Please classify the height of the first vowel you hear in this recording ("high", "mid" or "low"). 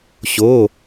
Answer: mid